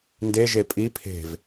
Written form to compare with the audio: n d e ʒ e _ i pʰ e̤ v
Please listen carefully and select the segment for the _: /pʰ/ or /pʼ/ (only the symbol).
pʼ